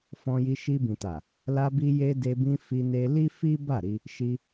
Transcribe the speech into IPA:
fɔ̃˧ji˧ ʃi˧bĩ˨ta˨ | la˧bi˧ je˧de˧bĩ˧ fi˧ne˧ li˦fi˦ ba˦˨ɾi˧ | ʃi˧

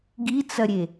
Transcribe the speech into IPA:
ɡit͡sɐɾʲe

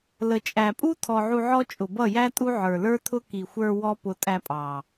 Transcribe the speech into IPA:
lə˨t͡ʃʼæ˨pʼu˦ tʰɔ˧ʕu˧ʕɔ˦ t͡ʃʼʊ˨bʌ˦˨jæ˦tʼu˦ ʕə˞˨lə˞˦tʰʊ˦ ki˨xʷə˞˧ wɔ˦pʊ˧ tʼæ˧pʼɑ˨

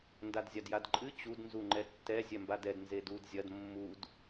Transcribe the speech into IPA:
ndadzʲadjadǃʼɨ t͡ɕud nzuŋ͡ǃɛtːɛ zʲɛmbadɛd nzedud zʲɐd mːud

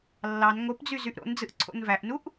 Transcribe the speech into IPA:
lːɑn ŋopd͡zy zyʔɾo̰nd͡zɯʔ ǀʰo̰nvæʔnuʔ

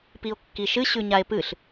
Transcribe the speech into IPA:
pio̯kːiʃɨ ɕʉɲae̯pɨɬ

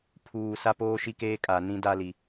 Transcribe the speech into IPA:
pʰuː˨ sa˦poː˦ʃi˦keː˦ kʼa˨ nĩ˦da˦li˨

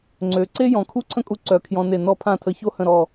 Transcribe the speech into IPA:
ŋ͡ǀø˩˧ǀe˥ jɔ̃˩˧kʰu˥ǀʰə̃˥kʼu˧ ǀœ˩˧ kʰjɔ̃˧ne˧˩ nɔ˧˩pʰã˧˩tʰə˩˧ ço˥hə̃˧˩ɾɔ˧˩

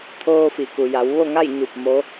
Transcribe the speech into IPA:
t̪ʰoː˧fi˩ku˩ ja˩˧w ʋo˥˨ŋa˥˨j ɲu˧˩p̚ mo˧˥

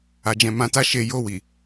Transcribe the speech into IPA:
a˨d͡ʒɛ̃˨ mã˨˦ta˦ʃe˧ jo˧wi˨

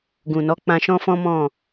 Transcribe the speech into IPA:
ɡũ˨nɔ˨˦ k͡pã˧ʃɔ̃˦fɔ̃˦mɔ̃˦˨

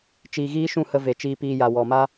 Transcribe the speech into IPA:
t͡ʃiː˨ɣiː˦ʃũ˦˨hə˧ ve˨t͡ʃiː˧piː˧ja˨ wɔ˨ma˦

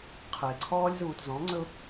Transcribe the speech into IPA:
qʰəɪ̯ǀʰɔːlʲzuːt zɔ̃ŋ͡ǀɵʊ̯

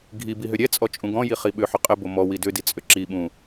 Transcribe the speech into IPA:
ɡʱi biɦʏɾʲɛt͡sʼɔ t͡ʃʼũɡɔ̃ji χiɓʏħʊ qʼɘbo mɔ widʏdi t͡sʼʏǁiɓũ

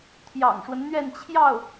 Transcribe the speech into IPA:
t̪ʰjɑ̰˨˩ŋʂwə˦nn̪ɥɛ˥˧n t͡ɕʰjɑ˥˩ʊ̯

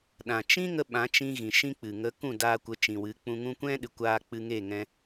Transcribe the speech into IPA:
ɗã˨t͡ʃĩ˦ŋə˧ ɓã˨˦t͡ʃĩ˧ɣĩ˨ ʃĩ˦k͡pɨ˨ ŋə˨˦ kũ˦˨daː˧kʷə˨˦ t͡ʃĩ˨wɨ˨˦k͡pũ˧ŋũ˦ kʷɛ̃˦ɗɨ˨ kʷaː˧ k͡pɨ˧ŋe˦˨ŋɛ̃˧

